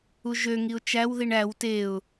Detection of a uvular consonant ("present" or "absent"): absent